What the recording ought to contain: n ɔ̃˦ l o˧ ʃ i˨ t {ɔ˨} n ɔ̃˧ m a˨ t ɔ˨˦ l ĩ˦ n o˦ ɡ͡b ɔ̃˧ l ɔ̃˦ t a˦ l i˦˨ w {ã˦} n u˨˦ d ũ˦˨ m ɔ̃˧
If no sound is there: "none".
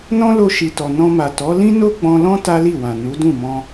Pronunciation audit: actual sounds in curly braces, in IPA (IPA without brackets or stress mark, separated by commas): ɔ˨, ã˨